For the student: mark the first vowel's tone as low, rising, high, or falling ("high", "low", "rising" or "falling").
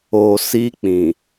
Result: low